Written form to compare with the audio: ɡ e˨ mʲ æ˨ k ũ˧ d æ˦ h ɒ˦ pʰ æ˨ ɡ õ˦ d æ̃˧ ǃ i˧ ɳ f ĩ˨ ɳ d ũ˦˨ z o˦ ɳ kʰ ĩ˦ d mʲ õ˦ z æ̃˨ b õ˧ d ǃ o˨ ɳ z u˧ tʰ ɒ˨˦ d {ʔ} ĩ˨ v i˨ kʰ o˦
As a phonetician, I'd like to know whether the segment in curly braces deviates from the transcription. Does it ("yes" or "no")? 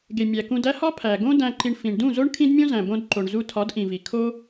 no